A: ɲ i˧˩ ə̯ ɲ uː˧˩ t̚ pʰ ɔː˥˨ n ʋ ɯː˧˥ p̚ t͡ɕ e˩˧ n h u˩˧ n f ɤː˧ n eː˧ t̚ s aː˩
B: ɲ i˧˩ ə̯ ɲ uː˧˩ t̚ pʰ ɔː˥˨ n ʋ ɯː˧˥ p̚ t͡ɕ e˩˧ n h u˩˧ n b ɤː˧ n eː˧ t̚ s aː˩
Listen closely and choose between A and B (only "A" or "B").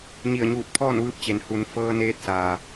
A